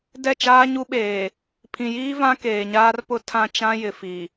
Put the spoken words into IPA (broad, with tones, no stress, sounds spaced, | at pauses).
d ɛ˦˨ t͡ʃ aː˦ ɲ u˦ ɓ eː˨ | pʰ ĩ˨ j iː˦ v ã˦ k eː˨ ɲ aː˦ r p ʊ˦ tʰ ã˦ t͡ʃ ã˦ j ɪ˨ f i˨